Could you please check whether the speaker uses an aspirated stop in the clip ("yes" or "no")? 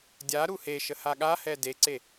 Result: no